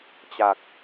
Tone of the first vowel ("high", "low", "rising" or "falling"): low